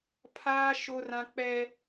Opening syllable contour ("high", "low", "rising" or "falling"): high